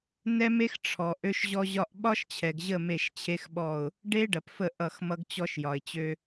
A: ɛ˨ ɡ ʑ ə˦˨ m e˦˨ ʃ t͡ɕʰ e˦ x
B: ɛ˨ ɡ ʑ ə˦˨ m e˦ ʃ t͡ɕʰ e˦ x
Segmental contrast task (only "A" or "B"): A